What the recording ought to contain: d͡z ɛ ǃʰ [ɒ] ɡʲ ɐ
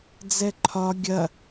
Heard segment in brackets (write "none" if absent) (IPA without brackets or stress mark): ɒ